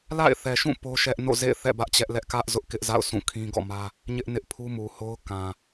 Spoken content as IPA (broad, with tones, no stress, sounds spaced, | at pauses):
l a̰˦˨ ɪ̯ θ ɛ˨ ʃ ũ˦˨ p o˦ ʃ ɛ˦ ʔ n o̰˦˨ z ḛ˦˨ ɪ̯ θ ɛ̰˦˨ b ä˦ ʔ t͡ɕ ɛ˦ ʔ l ɛ˦ ʔ k ä˦ ʔ z ʊ˦ ʔ k ɪ˦ ʔ z a̰˦˨ ʊ̯ sʰ ũ˦˨ kʰ ĩ˦ ɡ ɔ̰˦˨ m ä˦ | ɲ ɪ˦ ʔ n ɪ˦ ʔ pʰ u˦ m u˨ h o˦ ʊ̯ k ã˨